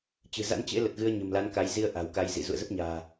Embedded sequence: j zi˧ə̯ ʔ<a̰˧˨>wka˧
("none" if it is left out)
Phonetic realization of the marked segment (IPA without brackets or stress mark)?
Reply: a̤˨˩